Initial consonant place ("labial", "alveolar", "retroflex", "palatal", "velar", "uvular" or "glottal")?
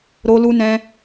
alveolar